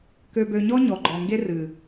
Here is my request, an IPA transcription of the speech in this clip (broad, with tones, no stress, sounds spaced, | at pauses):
k ø˨ b ø˨ ɲ ɔ˦ ɲ ɔ˨ ɡ͡ǃ ɔ˨ ŋ ɡ e˦ r ɨ˨